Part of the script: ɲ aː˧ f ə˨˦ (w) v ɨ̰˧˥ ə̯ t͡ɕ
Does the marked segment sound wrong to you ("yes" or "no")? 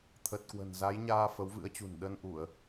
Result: no